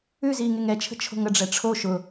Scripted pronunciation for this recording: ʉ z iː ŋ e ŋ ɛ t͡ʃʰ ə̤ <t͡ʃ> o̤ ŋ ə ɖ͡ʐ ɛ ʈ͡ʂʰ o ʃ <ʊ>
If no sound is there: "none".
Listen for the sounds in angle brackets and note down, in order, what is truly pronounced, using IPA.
t͡ʃʰ, ʊ

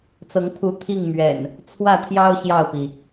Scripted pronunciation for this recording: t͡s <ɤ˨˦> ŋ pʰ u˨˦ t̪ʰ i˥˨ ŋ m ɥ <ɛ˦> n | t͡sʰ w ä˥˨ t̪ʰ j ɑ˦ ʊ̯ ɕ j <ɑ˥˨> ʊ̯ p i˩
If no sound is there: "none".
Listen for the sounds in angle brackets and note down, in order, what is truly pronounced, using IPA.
ɤ˨˦, ɛ̰˨˩, ɑ˥˨

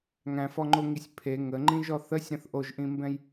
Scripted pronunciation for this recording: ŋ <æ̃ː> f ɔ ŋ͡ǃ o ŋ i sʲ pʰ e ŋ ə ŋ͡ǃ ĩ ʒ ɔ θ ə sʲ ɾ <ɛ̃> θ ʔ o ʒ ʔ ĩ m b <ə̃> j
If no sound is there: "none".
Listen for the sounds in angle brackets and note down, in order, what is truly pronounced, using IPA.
æ̃, ə̃, ɛ̃

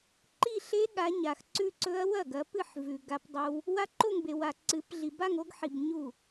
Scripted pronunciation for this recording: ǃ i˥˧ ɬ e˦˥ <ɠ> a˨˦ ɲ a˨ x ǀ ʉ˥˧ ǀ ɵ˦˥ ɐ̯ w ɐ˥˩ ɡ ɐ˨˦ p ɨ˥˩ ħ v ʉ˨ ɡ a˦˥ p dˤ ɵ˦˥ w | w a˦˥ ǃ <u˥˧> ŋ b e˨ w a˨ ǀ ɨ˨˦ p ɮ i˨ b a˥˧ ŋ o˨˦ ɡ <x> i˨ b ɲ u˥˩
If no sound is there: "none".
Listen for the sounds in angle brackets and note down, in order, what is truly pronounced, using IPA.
ɠ, o˥˧, ħ

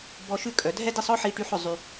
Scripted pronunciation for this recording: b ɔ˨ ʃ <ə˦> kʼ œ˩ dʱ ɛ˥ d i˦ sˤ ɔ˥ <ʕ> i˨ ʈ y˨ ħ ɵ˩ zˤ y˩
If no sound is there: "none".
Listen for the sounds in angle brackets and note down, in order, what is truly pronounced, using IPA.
ʉ˦, ħ

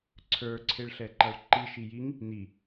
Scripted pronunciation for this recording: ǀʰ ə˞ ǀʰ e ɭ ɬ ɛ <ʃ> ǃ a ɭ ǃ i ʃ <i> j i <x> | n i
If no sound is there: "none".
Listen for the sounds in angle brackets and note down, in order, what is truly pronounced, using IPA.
none, i, ŋ

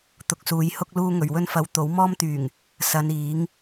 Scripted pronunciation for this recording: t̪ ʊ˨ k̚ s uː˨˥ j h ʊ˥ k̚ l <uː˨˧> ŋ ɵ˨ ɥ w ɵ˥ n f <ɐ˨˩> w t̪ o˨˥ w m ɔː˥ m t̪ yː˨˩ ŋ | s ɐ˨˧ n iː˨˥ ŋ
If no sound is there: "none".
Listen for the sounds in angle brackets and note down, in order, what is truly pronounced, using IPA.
uː˥, ɐ˧

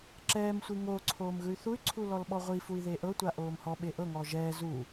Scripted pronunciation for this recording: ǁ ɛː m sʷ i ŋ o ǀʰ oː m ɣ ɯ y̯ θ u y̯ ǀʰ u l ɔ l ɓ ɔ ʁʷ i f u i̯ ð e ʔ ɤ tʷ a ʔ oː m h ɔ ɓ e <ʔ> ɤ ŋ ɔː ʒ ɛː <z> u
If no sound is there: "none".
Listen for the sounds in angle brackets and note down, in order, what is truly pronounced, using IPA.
ʔ, z

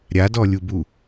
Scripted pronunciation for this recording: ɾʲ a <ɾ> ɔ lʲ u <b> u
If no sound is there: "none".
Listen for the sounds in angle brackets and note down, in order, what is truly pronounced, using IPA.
d, b

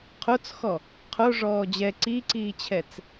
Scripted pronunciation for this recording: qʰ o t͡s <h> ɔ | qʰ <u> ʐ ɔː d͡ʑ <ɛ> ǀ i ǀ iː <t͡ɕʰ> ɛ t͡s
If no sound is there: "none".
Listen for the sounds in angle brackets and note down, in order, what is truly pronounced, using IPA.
x, o, ɛ, t͡ɕʰ

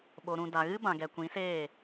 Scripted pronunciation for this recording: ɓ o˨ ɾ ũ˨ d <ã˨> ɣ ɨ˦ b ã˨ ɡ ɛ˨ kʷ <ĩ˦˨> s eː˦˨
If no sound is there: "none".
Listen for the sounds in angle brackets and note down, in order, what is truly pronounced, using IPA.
a˨, ĩ˨˦

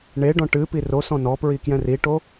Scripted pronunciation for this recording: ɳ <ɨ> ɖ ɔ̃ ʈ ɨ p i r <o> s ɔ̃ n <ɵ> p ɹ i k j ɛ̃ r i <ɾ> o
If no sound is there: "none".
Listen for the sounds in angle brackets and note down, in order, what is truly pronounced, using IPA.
e, o, ɔ, ʈ

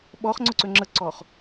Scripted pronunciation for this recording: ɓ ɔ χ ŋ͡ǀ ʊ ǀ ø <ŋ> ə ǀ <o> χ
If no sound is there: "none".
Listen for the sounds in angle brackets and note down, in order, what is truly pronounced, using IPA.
ŋ͡ǁ, ɔ

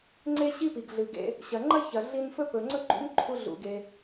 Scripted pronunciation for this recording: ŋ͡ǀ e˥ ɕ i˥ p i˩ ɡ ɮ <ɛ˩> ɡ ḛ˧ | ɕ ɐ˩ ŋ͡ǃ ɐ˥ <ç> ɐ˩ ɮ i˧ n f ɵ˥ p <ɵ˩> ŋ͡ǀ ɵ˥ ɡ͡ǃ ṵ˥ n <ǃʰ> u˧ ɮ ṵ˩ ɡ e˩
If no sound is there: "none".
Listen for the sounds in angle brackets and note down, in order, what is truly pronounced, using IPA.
ɨ˩, ç, ɵ˩, ǃʰ

